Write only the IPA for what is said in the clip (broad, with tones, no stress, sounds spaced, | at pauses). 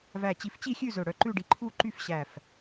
v æ˧˩ t͡ɕ i˧˩ f t͡ɕ i˥˨ xʲ ʉ˥˨ z ɵ˧˩ ɽ œ˧˩ ǃ ʉ˥˨ ɖ i˧˩ ǃʰ u˥˨ ǃ y˥˨ f ɕ æ˧˩ f